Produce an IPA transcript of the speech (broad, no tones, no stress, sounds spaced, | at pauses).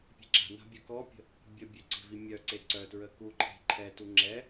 pʲ e̤ ǁ a̤ n a̤ bʲ ø k ɔ pʲ ə̤ | bʲ ə bʲ ø ǀ e̤ v i mʲ œ ǀ e ǀ œ t ɹ ə k u ǃʰ e̤ ǃʰ ɛ t u ŋ͡ǁ ɛ